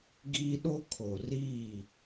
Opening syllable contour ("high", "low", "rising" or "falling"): high